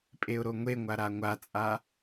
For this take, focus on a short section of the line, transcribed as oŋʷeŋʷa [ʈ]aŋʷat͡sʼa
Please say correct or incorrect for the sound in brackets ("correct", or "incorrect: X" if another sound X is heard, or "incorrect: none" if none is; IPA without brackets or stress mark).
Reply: incorrect: ɾ